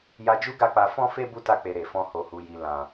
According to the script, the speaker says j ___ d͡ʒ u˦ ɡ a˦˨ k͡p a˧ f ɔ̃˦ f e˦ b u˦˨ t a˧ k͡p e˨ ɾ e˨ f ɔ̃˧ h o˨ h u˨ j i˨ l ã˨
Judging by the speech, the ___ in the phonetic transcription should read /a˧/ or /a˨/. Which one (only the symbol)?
a˧